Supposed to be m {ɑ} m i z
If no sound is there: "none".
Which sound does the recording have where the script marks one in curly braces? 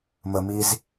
ə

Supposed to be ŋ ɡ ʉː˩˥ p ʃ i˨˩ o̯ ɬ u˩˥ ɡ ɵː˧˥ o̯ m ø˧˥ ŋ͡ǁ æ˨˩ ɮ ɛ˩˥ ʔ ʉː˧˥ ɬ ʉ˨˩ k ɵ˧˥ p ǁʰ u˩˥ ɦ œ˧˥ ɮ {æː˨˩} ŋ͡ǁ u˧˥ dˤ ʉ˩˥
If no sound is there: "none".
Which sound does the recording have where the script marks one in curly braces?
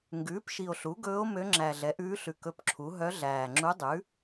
æː˨˩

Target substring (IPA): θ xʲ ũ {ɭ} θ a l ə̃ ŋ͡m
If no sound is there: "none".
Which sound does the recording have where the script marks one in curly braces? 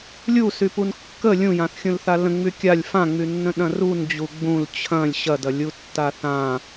l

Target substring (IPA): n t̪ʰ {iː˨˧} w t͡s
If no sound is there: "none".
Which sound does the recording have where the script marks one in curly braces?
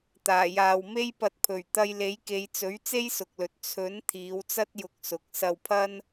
iː˨˧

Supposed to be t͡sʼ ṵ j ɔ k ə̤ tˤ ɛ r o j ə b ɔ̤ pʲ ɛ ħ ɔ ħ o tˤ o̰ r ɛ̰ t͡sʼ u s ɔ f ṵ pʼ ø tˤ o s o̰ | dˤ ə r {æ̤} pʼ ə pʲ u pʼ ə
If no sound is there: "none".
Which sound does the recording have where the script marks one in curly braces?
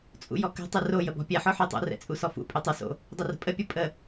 ə̤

